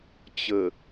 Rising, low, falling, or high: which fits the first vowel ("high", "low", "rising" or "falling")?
low